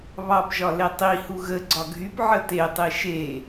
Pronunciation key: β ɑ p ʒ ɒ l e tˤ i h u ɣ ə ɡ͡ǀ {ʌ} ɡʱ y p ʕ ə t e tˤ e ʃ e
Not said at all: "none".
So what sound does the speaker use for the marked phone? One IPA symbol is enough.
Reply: ɒ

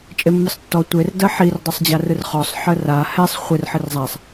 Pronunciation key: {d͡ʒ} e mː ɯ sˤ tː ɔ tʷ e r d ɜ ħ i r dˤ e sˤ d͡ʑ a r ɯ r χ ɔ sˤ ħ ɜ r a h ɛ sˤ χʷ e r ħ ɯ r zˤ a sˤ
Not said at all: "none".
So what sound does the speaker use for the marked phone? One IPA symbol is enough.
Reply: t͡ʃʼ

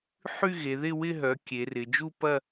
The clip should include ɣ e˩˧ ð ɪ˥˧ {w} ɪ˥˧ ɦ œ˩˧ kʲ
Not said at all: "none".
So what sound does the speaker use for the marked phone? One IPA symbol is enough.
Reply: w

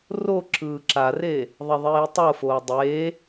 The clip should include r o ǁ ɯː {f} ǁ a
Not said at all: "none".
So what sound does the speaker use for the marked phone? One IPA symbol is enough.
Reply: none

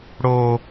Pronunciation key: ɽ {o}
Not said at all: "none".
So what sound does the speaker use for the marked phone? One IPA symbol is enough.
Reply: o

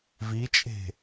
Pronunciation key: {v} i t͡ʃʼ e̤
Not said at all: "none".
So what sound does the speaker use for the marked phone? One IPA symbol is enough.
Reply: v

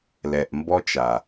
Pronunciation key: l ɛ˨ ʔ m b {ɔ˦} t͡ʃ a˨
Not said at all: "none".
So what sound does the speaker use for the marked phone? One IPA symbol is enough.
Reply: ɔ˦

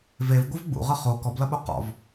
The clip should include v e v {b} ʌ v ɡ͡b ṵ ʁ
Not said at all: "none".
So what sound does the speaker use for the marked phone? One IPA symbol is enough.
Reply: ɡʷ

